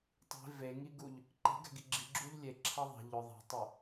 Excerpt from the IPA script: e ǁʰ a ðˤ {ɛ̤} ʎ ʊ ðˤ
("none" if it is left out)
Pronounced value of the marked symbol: e̤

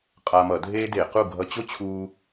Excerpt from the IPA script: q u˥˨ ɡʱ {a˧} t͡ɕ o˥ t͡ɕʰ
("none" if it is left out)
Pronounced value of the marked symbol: ʌ˧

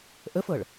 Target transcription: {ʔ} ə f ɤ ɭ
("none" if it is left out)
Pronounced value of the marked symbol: ʔ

